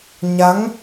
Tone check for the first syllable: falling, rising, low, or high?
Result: rising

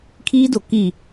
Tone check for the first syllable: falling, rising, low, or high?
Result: high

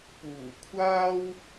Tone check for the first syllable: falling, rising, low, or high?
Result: low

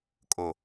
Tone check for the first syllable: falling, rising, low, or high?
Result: low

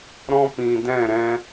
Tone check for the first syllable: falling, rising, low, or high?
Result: high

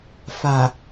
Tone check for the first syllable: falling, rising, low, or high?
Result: low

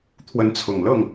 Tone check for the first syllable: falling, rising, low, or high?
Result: rising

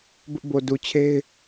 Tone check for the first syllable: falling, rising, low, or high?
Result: high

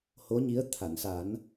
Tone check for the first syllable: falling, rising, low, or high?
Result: rising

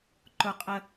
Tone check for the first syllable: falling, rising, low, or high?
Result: high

